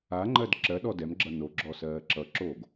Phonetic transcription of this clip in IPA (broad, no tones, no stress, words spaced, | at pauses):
aŋ͡ǃɜd ǁɜɗɔ dɛmɡ͡ǁʌ noɡ͡ǁɔsɜː ǁʌǁoːɡ